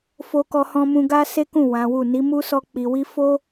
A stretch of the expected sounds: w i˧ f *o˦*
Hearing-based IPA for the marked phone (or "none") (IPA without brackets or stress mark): o˦